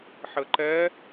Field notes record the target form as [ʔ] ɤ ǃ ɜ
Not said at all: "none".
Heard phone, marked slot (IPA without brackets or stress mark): ħ